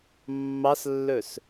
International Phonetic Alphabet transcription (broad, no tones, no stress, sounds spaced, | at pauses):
mː ɑ s lː ɵ s